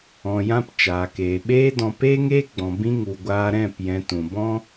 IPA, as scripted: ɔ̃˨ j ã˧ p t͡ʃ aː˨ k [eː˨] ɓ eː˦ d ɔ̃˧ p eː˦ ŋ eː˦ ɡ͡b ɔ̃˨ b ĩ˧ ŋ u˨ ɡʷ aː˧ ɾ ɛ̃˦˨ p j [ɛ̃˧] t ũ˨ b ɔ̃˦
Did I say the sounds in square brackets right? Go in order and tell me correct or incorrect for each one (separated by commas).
correct, incorrect